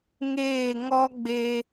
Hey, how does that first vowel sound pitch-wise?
falling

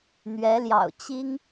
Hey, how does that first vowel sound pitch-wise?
rising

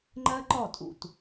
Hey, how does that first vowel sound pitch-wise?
high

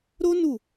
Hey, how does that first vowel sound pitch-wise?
high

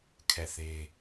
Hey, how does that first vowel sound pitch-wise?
falling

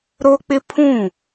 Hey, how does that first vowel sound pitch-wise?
high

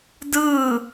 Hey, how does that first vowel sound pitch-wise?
falling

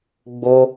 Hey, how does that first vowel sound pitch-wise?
high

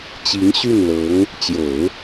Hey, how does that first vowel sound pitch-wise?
rising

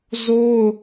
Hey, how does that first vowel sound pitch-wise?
high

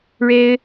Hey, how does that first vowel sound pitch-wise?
high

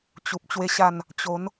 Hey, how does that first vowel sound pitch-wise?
low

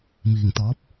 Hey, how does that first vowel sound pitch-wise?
low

